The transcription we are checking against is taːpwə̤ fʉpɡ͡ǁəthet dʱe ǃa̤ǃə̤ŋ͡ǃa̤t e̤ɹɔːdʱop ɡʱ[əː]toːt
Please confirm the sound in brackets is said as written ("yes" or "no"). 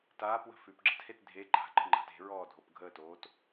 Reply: yes